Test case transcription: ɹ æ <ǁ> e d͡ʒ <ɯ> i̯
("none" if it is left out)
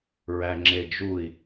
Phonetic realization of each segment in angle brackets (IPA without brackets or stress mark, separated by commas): ŋ͡ǁ, u